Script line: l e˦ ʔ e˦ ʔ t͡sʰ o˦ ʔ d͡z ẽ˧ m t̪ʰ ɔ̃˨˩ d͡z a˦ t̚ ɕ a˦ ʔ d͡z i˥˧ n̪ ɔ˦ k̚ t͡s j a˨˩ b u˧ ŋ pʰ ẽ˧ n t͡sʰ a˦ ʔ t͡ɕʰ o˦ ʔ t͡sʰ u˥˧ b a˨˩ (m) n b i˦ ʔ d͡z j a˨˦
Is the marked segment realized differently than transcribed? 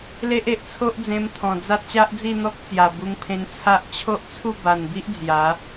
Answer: yes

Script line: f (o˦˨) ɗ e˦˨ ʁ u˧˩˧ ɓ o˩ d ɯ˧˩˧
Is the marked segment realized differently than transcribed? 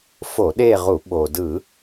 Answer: yes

